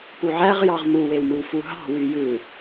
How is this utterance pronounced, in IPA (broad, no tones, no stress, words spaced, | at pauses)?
puʕæʁjɑʁ muwewmɯw fuɦɑ̤ wyjɯ